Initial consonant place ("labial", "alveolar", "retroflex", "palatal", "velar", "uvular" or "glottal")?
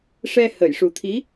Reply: retroflex